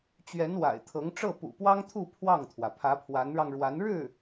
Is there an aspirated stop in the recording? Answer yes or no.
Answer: yes